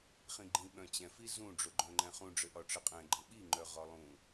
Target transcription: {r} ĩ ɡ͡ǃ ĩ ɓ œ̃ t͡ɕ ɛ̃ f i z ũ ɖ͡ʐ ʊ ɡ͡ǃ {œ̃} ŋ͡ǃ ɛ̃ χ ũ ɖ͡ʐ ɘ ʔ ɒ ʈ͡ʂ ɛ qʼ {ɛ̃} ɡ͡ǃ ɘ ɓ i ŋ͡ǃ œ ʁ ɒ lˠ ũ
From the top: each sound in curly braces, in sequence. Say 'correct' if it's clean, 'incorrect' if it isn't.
incorrect, correct, correct

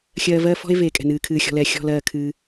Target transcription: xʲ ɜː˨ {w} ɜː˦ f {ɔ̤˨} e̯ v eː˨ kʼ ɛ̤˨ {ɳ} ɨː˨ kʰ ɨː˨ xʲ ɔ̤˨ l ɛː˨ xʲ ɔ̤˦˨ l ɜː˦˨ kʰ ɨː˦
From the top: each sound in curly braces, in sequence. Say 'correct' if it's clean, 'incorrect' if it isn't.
incorrect, incorrect, incorrect

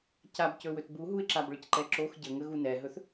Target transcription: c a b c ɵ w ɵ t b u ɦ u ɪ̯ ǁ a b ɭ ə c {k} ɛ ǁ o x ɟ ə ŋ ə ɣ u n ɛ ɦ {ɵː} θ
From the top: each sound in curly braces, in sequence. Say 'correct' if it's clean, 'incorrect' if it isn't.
incorrect, incorrect

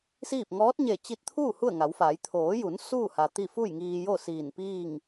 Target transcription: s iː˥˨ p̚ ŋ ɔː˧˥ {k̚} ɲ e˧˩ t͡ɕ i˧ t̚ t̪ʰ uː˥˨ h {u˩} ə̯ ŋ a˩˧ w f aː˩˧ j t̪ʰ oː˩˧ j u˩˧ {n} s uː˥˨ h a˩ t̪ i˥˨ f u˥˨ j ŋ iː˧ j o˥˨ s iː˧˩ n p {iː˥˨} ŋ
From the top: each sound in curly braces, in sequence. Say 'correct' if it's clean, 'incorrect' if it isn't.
incorrect, incorrect, correct, correct

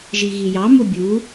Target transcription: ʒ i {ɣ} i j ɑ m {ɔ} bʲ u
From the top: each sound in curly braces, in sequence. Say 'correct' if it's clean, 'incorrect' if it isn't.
correct, incorrect

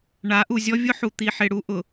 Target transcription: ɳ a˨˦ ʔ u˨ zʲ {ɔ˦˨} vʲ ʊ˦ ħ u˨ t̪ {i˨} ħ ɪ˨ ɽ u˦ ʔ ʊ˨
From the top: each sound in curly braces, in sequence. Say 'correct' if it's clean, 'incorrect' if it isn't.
incorrect, correct

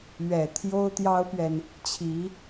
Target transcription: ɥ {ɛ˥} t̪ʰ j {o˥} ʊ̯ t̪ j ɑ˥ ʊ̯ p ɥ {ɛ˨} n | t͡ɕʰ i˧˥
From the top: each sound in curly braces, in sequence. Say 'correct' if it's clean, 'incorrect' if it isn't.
incorrect, correct, correct

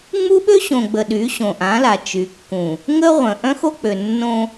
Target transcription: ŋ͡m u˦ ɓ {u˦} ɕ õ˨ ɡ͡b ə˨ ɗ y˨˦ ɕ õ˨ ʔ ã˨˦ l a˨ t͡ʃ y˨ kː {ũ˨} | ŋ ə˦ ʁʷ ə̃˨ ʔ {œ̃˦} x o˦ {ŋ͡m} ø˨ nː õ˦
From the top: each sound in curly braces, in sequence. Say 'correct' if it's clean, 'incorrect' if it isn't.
incorrect, correct, correct, incorrect

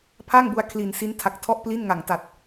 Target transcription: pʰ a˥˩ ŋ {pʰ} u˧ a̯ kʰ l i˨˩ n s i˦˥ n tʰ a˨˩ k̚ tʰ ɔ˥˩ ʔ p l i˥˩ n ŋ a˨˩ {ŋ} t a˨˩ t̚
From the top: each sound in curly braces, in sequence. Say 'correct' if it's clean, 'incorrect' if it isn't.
incorrect, correct

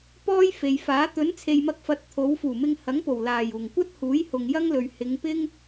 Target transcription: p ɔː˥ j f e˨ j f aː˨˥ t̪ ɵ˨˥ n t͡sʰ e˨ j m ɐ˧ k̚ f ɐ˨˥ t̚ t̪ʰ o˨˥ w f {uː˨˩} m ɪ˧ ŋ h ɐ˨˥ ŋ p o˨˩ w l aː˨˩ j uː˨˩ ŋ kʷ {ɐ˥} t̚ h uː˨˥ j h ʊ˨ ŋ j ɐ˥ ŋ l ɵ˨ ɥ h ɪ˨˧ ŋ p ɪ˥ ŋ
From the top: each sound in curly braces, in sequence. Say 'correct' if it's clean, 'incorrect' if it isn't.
correct, correct

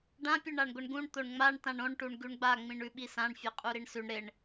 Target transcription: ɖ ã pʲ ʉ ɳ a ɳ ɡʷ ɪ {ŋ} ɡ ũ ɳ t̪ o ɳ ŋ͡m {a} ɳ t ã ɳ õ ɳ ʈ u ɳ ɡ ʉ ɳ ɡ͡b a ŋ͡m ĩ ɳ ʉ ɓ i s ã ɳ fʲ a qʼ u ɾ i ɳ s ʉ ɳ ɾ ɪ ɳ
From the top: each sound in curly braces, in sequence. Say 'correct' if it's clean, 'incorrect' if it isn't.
incorrect, correct

